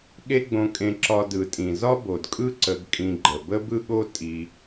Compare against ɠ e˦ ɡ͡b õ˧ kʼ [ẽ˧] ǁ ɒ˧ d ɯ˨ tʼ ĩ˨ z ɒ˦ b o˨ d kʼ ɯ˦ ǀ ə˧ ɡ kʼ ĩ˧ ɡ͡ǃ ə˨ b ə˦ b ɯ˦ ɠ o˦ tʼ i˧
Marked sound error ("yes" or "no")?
no